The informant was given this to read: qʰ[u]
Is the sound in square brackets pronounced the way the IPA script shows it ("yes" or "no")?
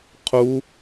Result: yes